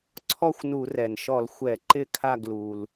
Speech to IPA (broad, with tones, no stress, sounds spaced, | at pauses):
ǀʰ ɔ˥˨ xʷ n u˧˩˧ r ɛ˩ n ʃ ɔ˧˩˧ l xʷ ɛ˧˩˧ ǃ ɪ˥˨ kʰ a˥˨ ɡ l u˩ l